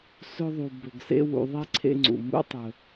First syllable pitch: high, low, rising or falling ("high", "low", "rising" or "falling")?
high